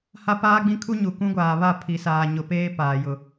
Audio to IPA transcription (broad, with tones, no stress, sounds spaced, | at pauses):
h a˦ p aː˦ ɡ͡b ĩ˦ kʰ u˦ ɲ u˨ k ũ˦ ɡʷ aː˨ β a˦˨ pʰ i˨ s aː˨ ɲ ʊ˨ p eː˦ p aː˨ j ʊ˨